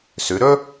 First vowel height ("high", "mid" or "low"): high